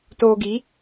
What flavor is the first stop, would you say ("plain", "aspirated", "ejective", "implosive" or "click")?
plain